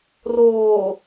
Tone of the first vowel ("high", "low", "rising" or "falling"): low